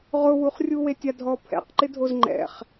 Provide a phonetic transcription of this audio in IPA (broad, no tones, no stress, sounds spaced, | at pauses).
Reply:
ʁ ʊ w u χ rʲ u w e tʲ a dʱ ɔ pʰ ɛ̰ q ǃ ɪ dʱ o z ŋ͡ǃ ɛ̰ χ